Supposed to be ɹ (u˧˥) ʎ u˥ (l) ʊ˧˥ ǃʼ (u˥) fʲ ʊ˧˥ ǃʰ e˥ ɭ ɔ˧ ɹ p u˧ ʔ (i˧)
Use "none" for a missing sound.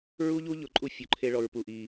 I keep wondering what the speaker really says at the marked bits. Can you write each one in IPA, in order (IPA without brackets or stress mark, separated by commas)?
u˥, ʎ, u˥, i˧